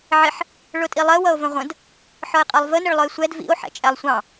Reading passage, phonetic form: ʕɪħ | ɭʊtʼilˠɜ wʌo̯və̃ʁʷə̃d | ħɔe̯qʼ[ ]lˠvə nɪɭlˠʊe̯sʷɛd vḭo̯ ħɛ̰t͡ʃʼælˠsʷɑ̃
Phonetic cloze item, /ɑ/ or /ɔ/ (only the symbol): ɑ